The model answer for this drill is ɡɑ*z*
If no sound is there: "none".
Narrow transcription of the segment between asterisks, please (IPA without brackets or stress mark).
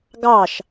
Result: ʃ